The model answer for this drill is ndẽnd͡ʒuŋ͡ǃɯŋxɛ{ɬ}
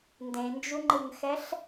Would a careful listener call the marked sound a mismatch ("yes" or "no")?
no